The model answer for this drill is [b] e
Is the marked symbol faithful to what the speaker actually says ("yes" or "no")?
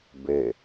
yes